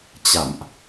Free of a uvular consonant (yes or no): yes